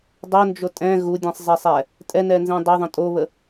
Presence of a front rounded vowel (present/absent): absent